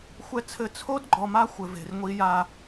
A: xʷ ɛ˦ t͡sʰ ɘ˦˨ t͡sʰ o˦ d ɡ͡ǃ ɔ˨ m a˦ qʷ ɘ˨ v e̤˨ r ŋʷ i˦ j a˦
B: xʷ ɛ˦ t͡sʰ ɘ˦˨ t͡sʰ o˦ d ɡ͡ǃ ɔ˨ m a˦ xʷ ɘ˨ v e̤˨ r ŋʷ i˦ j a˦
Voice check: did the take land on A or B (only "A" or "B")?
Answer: B